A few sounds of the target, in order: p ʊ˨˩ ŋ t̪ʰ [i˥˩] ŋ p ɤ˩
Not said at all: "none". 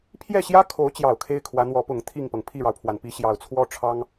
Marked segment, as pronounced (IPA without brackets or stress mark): i˥˩